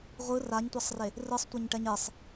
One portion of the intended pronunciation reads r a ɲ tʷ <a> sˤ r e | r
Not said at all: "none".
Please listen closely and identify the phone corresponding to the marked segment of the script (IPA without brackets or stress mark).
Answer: a